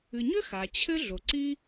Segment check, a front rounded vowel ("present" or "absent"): present